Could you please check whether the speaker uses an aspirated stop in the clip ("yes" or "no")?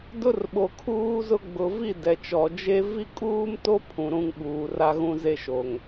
yes